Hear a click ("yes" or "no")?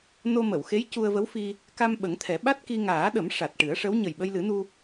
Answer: no